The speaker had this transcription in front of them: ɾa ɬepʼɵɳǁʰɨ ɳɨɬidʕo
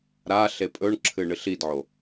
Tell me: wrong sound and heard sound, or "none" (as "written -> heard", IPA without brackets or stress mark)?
none